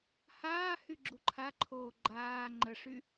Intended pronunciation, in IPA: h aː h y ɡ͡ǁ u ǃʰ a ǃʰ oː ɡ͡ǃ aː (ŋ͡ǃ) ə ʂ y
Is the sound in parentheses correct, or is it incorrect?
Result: correct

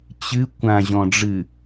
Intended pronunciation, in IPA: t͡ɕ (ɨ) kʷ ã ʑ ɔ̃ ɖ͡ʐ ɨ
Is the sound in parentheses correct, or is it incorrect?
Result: correct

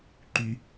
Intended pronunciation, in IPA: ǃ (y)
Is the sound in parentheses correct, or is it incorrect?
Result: correct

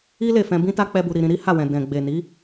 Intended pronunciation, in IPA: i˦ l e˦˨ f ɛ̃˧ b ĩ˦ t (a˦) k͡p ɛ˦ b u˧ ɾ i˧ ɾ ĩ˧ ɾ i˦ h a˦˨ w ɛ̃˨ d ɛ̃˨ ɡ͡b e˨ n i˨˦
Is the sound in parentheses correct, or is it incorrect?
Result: correct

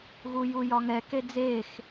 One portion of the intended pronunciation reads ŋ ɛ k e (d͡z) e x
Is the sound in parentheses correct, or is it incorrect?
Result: correct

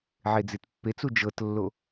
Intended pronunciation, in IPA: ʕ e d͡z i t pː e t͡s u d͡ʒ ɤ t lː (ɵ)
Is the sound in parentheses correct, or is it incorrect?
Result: incorrect: o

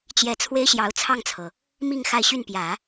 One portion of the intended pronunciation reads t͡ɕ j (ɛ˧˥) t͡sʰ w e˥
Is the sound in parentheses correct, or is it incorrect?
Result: correct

